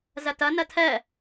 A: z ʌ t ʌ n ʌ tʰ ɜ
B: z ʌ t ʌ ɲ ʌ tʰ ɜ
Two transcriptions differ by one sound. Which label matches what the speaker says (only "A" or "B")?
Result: A